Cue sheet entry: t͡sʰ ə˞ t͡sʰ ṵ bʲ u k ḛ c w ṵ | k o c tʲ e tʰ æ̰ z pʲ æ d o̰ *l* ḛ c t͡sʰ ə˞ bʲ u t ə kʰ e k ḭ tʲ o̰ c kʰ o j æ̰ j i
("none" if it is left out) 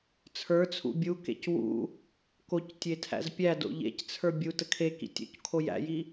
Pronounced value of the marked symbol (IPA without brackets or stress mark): ʎ